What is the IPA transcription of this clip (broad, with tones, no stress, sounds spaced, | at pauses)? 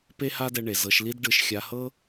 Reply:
p e˦ h a˦ d ɛ˧ ɳ e˨ z ɤ˧ ʃ l i˦ d ɖ ɯ˧ ʃ xʲ a˧ h ɤ˦